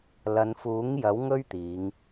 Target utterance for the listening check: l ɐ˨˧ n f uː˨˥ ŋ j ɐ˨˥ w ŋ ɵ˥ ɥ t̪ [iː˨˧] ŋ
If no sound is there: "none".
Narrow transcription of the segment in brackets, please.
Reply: iː˨˧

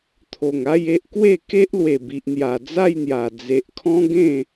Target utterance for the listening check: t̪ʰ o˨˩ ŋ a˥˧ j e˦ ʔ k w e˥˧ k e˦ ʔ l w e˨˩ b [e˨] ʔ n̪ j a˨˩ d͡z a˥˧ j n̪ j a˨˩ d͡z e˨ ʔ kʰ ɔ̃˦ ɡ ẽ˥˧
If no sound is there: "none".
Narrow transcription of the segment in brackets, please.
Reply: i˨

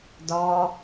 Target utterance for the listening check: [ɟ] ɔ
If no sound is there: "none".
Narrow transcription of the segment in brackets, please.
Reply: d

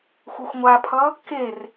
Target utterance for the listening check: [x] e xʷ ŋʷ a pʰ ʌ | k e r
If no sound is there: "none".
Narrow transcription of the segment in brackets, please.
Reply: xʷ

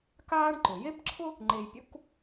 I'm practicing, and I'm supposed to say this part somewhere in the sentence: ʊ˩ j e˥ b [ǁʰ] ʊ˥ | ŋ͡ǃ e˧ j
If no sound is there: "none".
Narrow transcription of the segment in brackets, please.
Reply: ǁʰ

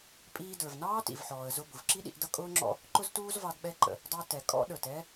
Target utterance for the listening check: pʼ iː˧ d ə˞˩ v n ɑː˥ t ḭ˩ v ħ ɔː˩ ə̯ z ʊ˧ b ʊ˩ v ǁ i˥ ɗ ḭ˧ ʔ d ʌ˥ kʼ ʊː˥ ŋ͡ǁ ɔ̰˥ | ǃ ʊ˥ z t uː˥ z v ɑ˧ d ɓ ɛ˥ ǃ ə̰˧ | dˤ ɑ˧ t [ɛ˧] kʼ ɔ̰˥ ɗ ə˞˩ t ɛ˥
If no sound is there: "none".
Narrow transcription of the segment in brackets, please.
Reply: ɛ˩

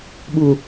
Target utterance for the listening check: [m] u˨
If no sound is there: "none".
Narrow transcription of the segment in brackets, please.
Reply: ɓ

